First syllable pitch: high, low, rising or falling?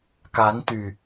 rising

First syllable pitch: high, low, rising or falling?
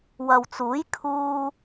low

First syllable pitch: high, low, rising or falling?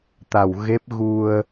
low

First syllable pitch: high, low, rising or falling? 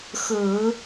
low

